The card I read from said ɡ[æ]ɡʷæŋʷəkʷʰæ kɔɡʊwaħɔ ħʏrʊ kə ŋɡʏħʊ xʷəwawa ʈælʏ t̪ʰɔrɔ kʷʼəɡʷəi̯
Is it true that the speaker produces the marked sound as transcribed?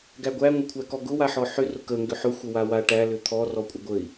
yes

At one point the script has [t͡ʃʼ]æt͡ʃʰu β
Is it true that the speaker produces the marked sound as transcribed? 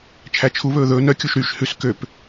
no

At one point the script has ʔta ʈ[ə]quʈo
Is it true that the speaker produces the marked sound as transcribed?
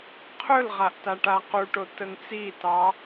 no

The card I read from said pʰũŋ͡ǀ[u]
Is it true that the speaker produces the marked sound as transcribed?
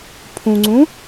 no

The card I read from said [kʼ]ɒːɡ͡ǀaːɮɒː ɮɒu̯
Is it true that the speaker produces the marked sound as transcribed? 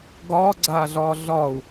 no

